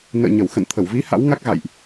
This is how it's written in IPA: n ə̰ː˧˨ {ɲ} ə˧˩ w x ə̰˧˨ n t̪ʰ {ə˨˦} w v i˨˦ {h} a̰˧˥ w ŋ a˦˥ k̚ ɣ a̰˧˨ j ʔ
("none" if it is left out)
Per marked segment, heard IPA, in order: ɲ, ə˧˩, h

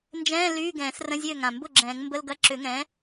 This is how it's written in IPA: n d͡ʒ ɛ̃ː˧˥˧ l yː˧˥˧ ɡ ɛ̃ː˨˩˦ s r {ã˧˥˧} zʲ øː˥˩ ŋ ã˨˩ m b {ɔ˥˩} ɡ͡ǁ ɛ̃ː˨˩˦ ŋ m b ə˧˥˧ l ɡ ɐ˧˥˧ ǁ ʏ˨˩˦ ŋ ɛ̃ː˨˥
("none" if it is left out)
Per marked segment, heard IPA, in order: ə̃˧˥˧, ʊ˥˩

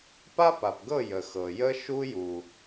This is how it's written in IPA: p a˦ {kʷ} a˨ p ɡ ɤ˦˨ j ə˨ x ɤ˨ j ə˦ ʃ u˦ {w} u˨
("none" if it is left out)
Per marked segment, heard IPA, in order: p, j

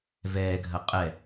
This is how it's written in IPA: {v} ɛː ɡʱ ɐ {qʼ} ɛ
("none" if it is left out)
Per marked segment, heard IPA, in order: v, qʼ

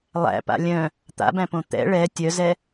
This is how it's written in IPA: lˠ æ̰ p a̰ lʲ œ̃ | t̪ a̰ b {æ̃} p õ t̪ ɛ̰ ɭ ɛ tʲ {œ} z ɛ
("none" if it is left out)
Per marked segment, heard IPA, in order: æ̃, œ

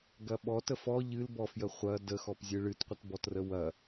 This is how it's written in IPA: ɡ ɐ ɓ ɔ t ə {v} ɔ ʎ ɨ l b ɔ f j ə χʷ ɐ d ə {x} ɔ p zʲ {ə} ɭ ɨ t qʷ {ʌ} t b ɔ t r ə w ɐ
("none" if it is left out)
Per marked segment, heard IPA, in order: f, x, ɨ, ə

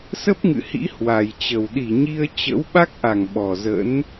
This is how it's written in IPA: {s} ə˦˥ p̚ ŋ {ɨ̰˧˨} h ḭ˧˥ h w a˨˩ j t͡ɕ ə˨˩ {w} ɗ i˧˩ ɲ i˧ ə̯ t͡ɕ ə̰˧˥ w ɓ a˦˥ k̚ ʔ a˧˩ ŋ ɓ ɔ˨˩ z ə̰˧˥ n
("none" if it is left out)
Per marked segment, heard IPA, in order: s, ɨ̰˧˨, w

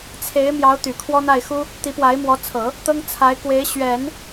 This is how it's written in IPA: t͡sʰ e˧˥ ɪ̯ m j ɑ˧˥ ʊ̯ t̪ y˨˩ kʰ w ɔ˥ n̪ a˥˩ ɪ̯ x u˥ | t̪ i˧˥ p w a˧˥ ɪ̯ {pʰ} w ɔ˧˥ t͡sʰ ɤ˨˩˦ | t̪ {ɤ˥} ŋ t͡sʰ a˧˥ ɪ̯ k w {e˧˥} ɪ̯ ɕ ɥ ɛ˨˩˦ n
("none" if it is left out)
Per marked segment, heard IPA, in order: m, ɤ˥, e˧˥

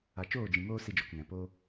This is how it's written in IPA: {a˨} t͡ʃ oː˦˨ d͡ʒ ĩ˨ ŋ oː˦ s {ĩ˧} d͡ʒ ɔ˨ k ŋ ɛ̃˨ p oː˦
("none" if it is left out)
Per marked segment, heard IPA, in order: a˨, i˧

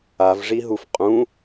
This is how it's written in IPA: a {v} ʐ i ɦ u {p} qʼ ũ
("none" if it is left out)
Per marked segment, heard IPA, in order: v, f

